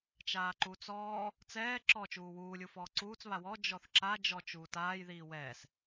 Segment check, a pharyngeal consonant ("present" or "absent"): absent